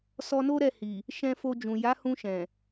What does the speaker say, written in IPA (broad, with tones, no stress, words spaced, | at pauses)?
sɔ˧no˦ɾɛ˦˨ hi˨ | ʃɛ̃˧fo˧d͡ʒũ˨ ja˨˦hũ˧ʃɛ̃˨